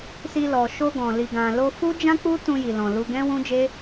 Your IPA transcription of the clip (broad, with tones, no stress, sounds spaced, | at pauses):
s i˧ l ɔ˨ ʃ o˧ ɡ ɔ̃˨ l i˨ ɡ ã˨ l o˧ f u˦ d͡ʒ ã˦ k͡p u˦ t ũ˧ j i˨ l ɔ̃˨ l u˧ ɡ ɛ̃˦ w ũ˦ d͡ʒ e˦